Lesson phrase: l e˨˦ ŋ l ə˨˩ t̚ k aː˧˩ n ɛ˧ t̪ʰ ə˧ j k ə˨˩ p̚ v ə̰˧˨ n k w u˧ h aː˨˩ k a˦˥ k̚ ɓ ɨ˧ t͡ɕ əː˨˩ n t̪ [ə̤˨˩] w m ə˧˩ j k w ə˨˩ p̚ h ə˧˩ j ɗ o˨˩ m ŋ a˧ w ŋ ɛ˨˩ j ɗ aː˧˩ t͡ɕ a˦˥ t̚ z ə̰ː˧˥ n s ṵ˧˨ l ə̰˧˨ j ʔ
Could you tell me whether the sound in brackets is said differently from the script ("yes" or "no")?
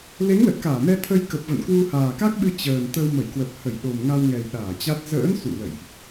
yes